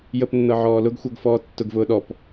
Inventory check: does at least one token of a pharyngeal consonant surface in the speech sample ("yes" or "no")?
yes